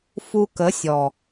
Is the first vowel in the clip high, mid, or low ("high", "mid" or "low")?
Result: high